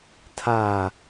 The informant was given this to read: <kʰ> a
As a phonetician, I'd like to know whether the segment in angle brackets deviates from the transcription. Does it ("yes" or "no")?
yes